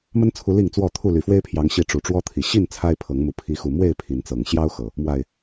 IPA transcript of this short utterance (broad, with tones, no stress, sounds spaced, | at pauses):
m ə˦ n t͡sʰ u˨˦ l i˥˨ ŋ t͡s w ɔ˥˨ t̪ʰ u˥˨ l y˨˩ f w e˦ ɪ̯ pʰ j ɑ˨˦ ŋ ɕ i˨˦ ʈ͡ʂ u˨˩ ʈ͡ʂ w ɔ˦ t̪ʰ i˨˩ ɕ i˥˨ n t͡sʰ a˦ ɪ̯ pʰ ɤ˨˦ ŋ m u˨˦ pʰ i˨˦ x u˨˩ m w e˥˨ ɪ̯ pʰ i˨˦ n t͡s ɤ˨˩ ŋ ɕ j ɑ˦ ʊ̯ x ɤ˨˩ | m w a˨˩ ɪ̯